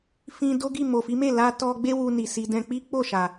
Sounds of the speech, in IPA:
fĩ˧do˦ɡi˦˨ mo˨fi˨˦me˦˨la˧ tɔ˧ɡ͡be˦ wu˧ni˨ si˧ dɛ̃˧k͡pi˦ k͡po˦˨ʃa˨

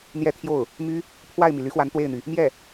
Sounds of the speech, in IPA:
n̪jɛ˥t̪ʰjo˥˩ʊ̯ | my˥ | pʰwa˥˩ɪ̯mi˩ ly˧˥xwa˧˥n t̪we˥˩ɪ̯n̪y˩ | mjɛ˥˩

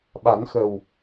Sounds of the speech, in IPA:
ɓa˨˩˦nxə˨˩w

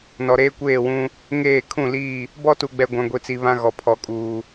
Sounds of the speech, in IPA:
nɔ˨ɾeː˦kʷeː˦˨wũ˦ | ŋeː˦˨ kʰũ˦˨liː˦˨ | bɔ˦tu˨ɡ͡bɛ˨ ɡʷã˨ɡʷi˨t͡si˨ βã˦ɣɔ˨ pʰɔ˨kʼuː˨

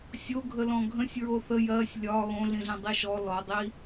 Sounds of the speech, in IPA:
sʲoɡʱə lɔ̃ɡʱə̃sʲ ɹoθə jɜsʲ lʲɒ ɣõɮĩɮɛ̃ dˤiʃɔ lɔdˤi

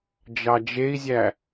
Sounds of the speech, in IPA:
d͡ʒɑd͡ʒei̯zʲæ

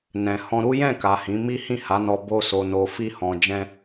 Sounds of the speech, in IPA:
nɛ̃˨hɔ̃˧ ɾu˦jɛ̃˦˨ka˨ hĩ˨˦mi˦ hĩ˦˨ha˨˦nɔ˧ bo˦so˧no˧ fi˦hɔ̃˧ d͡ʒɛ̃˦

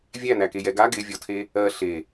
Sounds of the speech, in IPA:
vʲænækejɛ ɡa ɡɪvʲɔtʰe | ɜ ɬe

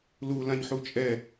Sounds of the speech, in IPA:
lu lãɲħut͡ʃʼɛ

